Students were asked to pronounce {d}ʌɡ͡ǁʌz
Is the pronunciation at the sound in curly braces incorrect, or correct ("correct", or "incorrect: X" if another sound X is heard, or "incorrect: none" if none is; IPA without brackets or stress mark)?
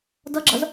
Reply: correct